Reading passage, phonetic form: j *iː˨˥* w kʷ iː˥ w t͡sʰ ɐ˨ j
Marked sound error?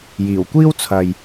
yes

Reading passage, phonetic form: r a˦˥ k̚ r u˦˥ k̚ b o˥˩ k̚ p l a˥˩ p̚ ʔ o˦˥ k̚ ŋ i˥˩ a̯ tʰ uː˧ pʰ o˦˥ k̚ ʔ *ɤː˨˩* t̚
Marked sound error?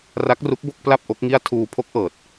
no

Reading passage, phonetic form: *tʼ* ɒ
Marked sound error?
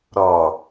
yes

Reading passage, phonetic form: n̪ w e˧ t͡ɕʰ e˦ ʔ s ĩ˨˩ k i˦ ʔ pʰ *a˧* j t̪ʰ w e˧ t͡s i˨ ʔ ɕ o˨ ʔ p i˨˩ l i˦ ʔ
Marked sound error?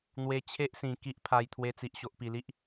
no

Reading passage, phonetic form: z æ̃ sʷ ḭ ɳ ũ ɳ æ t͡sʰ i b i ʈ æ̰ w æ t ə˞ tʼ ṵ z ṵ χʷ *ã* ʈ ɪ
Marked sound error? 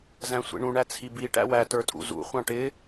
yes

